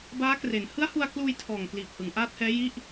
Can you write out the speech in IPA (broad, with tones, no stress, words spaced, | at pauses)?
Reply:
baː˦˥kre˩˦n hɯ˦˥a̯hu˧a̯kluː˧j tʰɔː˨˩ŋ kliː˨˩p̚hɯ˩˦ŋ ʔaː˦˥t̚hɛː˦˥ji˥˩ʔ